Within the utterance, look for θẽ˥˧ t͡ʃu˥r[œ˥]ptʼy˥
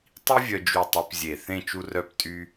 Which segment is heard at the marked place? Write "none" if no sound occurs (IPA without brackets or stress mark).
œ˥